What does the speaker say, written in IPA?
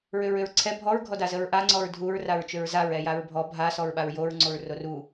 ɹ ʏ ɹ ʏ ɹ ǀʰ ɛ bʱ ɔ ɹ ɡʱ ɔ d a z ə ɹ ʔ a ŋ͡ǀ ɔ ɹ dʱ u ɹ r a ɹ t͡ʃ ʏ ɹ z a ɹ ɛ j a ɹ bʱ ɔ bʱ a s ɔ ɹ ɓ a ɹ j o ɹ ŋ͡ǀ o ɹ r o r u

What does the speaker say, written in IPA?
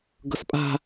ɡ ɤ s pʼ a̤

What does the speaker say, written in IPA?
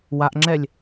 w a ʔ ŋ͡ǁ ɛ lʲ

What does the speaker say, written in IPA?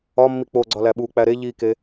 ɒ mː i k͡p o ɡ͡ǀ ɒ l æ ɓ u k͡p æ ɾ e ʎ i k e

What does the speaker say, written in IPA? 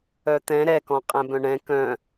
œ t̪ ɛ̃ ɾ ɛ k ɔ̃ qʼ ɛ̃ b œ̃ ɳ ɛ̃ k œ̃

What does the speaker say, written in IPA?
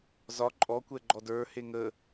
z ɒ ǃʼ ɔ kʷ ɛ ɡ͡ǃ ɔ d ə˞ h e ŋ ə

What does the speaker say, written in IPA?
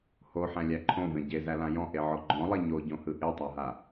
h o ħ æ̃ lʲ æ ǃʰ õ v ẽ ɟ e z æ l ã j ɔ̃ ʔ e ʕ ɔ ɡ͡ǃ ɔ̃ lˠ e ɲ o ɟ õ h ɯ ʔ e tˤ a ɦ a

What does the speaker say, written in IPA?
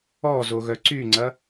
ɔ z o ɣ œ ǀ y ŋ͡ǀ ɐ

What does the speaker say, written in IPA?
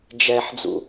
d͡ʒ ɛ ħ d͡z ṵ

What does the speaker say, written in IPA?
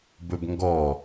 b ɵ b ŋ ɡ ɔ

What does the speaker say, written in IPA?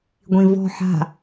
ɡʷ ĩ v ɔ̤ ħ a̤

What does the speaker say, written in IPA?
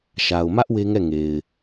ʃ a˨ ʊ̯ m ä˦ ʔ w e˦ ŋ ɛ˦˨ ŋ e˨ ɪ̯

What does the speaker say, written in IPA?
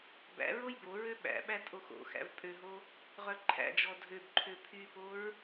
b æ̰ ɹ o j b o ɹ ø ɓ æ̰ ɓ æ tʼ o x o̰ x æ̰ v pʼ ø ɦ o | ʁ œ ǃʰ æ̰ d͡ʒ ɔ dʱ ø b ǃʰ ø pʰ y p o ɹ

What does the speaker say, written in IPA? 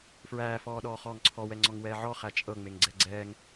f ɹ æː f ɔː ɗ ɔː χ ɔː ŋ ǀʰ ɔ w ɛ ŋ͡ǀ ɔ ŋ w ɛː ʕ ɔ χ æ t͡ʃʼ ɤ ŋ͡m e ŋ ɡ͡ǀ ɛ ɡ͡ǀ ɛː ŋ

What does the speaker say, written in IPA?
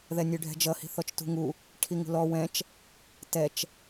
ð ɛ nʲ ʉ ɖʱ ɛ̤ d͡ʒ ʌ h i̤ θ ɔ t͡ʃ t ṳ ŋ u | ʈʰ i ŋ ṳ l ɔ w ɛ̃ t͡ʃ | t ɛ t͡ʃ

